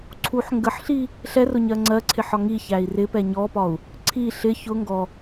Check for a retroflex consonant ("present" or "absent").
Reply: absent